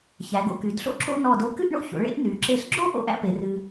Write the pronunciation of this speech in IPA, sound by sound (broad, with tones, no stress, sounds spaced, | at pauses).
ç æ˩˧ ɡ o̰˧ k y˩˧ d ɬ o̰˥ ǁ o̰˥˧ n ɔ˧˩ d o˧ k ɨ˥˧ ʔ ɳ o̰˥˧ ç o̰˩˧ ɭ ḛ˥˧ ʔ n y˩˧ ǁ e˧˩ ɬ ɡ͡ǁ o˥ ʔ o̰˥ ʔ æ̰˥ p e˩˧ r ɨ˧